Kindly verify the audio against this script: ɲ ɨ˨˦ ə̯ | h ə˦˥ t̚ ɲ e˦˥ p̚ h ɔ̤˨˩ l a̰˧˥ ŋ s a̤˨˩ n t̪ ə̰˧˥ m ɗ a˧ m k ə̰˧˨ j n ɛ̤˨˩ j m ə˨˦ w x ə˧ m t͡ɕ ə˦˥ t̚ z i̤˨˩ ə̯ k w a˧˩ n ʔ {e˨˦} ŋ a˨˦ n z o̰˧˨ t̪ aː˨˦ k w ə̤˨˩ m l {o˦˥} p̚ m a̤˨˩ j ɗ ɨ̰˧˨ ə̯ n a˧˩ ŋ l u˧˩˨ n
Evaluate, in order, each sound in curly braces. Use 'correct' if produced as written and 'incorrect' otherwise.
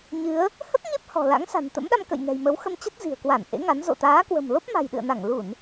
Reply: incorrect: ḛ˧˥, correct

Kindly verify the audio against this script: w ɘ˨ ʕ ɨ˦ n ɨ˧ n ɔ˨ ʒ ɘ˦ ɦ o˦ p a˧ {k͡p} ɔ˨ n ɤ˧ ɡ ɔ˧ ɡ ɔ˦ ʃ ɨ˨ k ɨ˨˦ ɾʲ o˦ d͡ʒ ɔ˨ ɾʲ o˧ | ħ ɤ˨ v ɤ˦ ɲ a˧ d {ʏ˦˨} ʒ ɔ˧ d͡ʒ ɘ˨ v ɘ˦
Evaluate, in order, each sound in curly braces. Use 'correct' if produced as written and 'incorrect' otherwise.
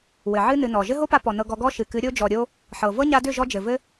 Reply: incorrect: p, correct

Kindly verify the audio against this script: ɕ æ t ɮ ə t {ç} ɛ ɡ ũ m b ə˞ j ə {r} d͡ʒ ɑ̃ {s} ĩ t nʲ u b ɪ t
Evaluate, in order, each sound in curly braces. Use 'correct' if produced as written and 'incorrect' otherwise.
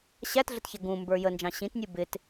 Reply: correct, incorrect: n, incorrect: ɕ

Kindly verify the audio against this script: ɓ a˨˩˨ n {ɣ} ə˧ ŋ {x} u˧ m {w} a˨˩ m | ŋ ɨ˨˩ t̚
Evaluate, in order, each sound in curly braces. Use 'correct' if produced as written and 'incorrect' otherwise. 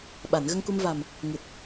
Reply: correct, incorrect: k, incorrect: v

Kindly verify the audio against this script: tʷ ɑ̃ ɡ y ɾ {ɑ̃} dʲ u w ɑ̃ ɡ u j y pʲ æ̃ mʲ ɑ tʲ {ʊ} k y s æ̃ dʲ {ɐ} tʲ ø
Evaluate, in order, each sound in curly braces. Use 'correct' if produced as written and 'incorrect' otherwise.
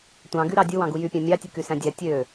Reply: incorrect: ɑ, incorrect: ɯ, incorrect: æ

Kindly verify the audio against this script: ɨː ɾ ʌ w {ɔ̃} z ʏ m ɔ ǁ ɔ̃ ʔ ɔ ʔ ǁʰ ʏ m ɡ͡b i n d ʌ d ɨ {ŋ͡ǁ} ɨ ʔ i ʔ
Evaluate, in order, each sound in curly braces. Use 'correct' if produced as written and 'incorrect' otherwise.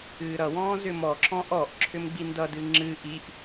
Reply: incorrect: ɔ̃ː, correct

